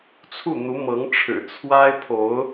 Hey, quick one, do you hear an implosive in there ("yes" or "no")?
no